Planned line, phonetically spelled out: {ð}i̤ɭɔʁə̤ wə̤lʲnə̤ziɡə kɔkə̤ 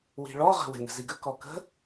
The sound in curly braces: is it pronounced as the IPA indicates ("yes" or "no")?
no